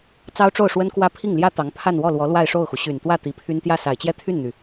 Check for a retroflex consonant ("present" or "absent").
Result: present